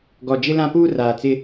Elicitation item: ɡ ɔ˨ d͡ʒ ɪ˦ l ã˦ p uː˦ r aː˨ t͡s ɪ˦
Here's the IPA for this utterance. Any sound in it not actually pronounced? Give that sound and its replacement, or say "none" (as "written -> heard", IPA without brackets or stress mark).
none